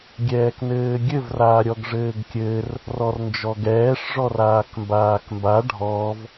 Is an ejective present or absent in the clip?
absent